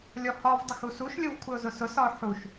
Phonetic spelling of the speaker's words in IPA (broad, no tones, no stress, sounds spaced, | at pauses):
lʲ ɔ h ɒ v dˤ ə x u s u ʃ lʲ ʊ v kʷʰ ɪ ʊ̯ z ʊ s ʊ s ɒ ʊ̯ ħ u ʃ